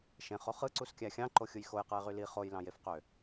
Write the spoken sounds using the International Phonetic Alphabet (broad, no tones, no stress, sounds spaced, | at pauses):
ʃ ẽ χ o χ ɯ ǀ u s kʲ æ xʲ ɑ̃ ǃ o xʲ ɯ j x o j q ɯ ɪ̯ ʁ y l i χ o j l ɑ̃ j e f q ø